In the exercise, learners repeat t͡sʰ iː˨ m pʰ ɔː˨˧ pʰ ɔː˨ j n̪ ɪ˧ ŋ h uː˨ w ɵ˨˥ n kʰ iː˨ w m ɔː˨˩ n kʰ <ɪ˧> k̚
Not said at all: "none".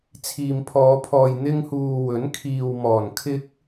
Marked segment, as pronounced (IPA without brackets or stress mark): ɪ˧